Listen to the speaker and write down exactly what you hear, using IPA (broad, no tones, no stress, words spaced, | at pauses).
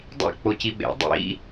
dˤḭ k͡pociɓḛ dˤḭ